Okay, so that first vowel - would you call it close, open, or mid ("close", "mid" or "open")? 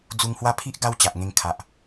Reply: close